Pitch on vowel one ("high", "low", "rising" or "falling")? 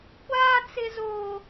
high